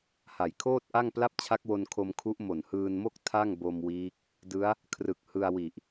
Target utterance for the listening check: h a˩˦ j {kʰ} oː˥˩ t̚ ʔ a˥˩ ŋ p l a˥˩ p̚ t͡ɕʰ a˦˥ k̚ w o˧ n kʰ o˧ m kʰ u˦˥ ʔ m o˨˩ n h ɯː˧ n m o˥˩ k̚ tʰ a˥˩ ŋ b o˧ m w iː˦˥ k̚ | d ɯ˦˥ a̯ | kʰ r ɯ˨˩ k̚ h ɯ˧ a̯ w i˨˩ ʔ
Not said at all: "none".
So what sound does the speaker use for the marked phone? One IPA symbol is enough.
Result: kʰ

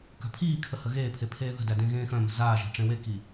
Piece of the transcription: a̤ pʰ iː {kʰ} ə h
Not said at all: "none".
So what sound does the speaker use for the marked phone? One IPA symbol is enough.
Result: kʰ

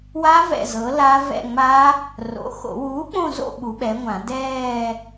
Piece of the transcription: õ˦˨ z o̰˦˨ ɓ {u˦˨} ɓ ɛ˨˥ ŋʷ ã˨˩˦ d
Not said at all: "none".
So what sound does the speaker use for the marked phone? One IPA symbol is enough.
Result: u˨˥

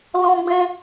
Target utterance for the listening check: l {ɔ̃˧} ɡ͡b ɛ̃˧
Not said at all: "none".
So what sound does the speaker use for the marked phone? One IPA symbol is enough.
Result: ɔ̃˧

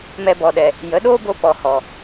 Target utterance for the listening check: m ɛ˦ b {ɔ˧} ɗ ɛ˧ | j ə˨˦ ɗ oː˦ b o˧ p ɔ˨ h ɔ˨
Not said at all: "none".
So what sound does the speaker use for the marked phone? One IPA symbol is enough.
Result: ɔ˧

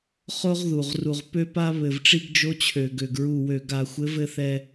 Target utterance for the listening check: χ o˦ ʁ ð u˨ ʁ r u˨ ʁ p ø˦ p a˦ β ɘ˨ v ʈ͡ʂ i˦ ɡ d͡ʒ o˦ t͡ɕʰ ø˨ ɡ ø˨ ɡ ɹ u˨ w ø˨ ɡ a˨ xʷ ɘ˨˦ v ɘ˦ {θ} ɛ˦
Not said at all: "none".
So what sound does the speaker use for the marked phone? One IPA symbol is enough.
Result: θ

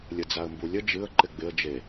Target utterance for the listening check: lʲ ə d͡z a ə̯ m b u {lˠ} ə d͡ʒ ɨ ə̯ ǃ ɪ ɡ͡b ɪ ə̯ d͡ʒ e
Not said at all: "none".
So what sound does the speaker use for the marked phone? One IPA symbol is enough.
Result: lʲ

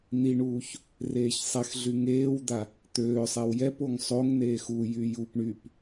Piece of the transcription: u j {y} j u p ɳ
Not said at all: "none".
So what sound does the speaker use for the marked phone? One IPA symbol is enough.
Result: y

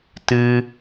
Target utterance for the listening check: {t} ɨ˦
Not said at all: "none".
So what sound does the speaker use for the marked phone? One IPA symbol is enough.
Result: t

